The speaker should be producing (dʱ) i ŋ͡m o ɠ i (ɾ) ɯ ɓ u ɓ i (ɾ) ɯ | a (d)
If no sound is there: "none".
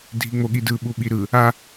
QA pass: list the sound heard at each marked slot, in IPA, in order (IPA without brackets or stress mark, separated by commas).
dʱ, d, ɾ, none